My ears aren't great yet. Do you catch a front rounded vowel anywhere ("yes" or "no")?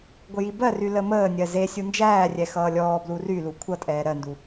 yes